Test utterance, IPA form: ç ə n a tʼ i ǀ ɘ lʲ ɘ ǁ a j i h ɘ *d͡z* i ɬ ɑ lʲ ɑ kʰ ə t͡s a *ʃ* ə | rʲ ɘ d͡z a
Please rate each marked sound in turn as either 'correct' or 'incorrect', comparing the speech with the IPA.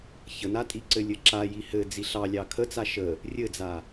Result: correct, correct

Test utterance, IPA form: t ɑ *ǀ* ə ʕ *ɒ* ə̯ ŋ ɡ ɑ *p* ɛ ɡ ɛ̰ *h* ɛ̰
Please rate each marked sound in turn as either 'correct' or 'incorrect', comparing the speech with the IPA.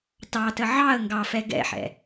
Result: incorrect, incorrect, incorrect, incorrect

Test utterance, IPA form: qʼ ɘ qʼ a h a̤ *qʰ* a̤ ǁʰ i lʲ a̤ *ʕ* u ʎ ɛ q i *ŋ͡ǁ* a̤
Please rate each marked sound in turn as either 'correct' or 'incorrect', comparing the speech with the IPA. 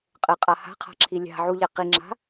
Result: correct, correct, correct

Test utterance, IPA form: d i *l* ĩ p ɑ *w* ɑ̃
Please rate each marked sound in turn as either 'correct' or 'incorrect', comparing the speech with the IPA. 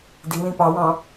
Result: correct, correct

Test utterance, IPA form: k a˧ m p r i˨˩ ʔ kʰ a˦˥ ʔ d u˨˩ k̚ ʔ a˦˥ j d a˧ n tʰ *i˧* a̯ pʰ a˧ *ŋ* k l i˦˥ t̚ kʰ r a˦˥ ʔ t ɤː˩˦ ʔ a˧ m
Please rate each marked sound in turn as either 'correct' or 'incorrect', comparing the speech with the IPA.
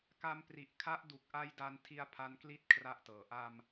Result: correct, incorrect

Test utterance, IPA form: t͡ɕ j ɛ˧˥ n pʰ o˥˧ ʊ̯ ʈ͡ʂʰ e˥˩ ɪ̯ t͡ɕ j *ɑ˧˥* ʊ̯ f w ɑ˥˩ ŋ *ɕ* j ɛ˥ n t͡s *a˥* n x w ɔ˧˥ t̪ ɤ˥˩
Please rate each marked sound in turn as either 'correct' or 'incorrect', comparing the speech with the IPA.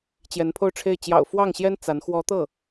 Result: incorrect, correct, incorrect

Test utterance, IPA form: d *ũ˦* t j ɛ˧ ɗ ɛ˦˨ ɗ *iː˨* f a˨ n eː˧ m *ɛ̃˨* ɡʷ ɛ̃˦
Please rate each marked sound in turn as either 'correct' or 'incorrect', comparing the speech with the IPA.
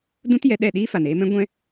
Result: correct, incorrect, incorrect

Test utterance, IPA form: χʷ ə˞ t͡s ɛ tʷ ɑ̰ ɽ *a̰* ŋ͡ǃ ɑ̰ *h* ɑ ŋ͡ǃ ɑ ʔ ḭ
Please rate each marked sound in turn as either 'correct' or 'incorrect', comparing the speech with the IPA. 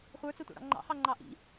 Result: incorrect, correct

